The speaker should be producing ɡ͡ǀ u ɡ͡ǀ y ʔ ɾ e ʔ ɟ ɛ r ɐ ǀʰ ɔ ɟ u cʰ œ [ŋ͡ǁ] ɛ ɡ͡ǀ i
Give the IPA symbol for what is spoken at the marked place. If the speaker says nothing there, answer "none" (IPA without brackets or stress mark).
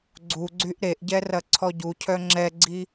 ŋ͡ǁ